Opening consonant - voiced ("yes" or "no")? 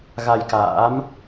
yes